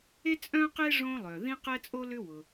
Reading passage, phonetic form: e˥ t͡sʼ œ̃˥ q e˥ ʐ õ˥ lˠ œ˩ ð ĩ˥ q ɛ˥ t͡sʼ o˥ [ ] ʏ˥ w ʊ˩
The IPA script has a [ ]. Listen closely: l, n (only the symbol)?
l